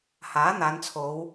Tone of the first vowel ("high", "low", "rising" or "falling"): rising